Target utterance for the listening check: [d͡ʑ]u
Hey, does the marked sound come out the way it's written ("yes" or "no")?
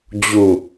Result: yes